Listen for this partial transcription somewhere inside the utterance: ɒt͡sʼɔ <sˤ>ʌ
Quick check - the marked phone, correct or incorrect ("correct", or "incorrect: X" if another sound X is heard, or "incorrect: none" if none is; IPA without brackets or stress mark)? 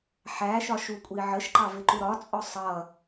correct